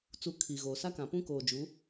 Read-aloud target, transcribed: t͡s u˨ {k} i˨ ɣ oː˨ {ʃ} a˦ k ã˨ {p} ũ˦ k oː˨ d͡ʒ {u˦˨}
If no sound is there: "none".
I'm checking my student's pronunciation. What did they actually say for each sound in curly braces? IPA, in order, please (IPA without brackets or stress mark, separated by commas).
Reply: kʰ, s, p, u˨˦